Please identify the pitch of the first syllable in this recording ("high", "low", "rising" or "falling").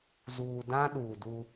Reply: low